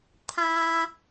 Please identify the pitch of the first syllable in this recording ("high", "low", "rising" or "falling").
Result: low